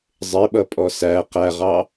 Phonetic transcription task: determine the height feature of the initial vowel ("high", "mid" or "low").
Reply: high